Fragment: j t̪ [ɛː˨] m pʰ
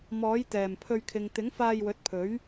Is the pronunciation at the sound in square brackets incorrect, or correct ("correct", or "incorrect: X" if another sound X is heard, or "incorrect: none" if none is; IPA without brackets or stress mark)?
incorrect: ɛː˨˩